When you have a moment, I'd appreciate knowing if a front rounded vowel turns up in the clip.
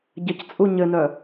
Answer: yes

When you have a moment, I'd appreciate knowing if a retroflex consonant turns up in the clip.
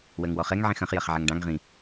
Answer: yes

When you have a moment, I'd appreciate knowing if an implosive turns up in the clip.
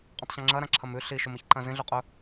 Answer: no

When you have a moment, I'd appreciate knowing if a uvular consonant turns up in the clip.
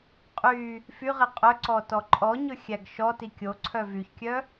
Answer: yes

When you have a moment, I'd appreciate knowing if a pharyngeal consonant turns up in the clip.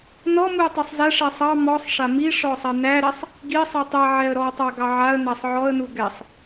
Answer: yes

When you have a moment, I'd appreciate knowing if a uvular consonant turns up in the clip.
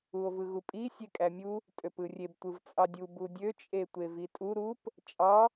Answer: no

